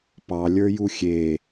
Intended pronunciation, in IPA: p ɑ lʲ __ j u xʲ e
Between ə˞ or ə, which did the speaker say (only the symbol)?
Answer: ə˞